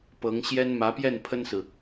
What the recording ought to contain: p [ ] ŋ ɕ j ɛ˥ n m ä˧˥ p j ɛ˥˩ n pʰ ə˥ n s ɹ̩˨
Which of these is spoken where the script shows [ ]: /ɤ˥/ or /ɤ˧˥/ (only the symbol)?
ɤ˧˥